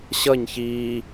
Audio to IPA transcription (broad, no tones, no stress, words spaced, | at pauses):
ɕʌɲ çiː